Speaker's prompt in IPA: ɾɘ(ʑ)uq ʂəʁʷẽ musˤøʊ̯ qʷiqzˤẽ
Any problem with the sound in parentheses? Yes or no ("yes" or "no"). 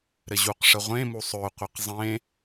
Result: no